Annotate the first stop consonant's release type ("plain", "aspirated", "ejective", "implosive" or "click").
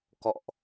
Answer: plain